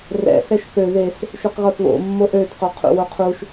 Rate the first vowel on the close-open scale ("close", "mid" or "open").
mid